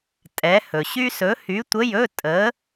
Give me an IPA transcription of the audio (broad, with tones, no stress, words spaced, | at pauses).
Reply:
tʼɛ˨˥hɵ˨ɕy˥ sɵ˨˥hy˨˥tʷə˧˥˧jɵ˧˥˧ tʼə˨˥